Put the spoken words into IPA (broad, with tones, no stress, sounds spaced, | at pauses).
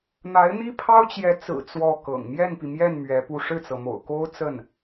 n̪ a˧˥ ɪ̯ n̪ i˥ pʰ ɑ˥ ʊ̯ t͡ɕ j ɛ˧˥ t͡s ɹ̩˨˩ t͡s w ɔ˥˩ k ɤ̰˨˩ ŋ m j ɛ˥˩ n p i˩ m j ɛ˥˩ n m ɥ ɛ˧˥ p u˥˧ ʂ ɻ̩˥˩ t͡s ɤ˩ m o̰˨˩ ʊ̯ k o˥ ʊ̯ t͡s ə˥˩ n